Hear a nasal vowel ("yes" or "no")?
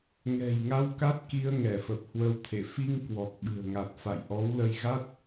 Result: no